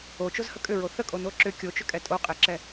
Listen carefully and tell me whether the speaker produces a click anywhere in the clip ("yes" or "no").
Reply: yes